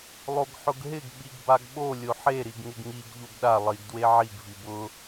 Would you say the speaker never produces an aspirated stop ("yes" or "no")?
yes